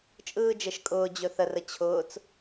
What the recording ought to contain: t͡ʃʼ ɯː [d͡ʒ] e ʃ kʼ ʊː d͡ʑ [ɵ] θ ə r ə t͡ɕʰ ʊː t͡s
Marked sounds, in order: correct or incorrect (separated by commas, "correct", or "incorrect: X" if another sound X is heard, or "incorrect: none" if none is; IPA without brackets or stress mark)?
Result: correct, correct